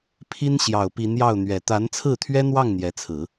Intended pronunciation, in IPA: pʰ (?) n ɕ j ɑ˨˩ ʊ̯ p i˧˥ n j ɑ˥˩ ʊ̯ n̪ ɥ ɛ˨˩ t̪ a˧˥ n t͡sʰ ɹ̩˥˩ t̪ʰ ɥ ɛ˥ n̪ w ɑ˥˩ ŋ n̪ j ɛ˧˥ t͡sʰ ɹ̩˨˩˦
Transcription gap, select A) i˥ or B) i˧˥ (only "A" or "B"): A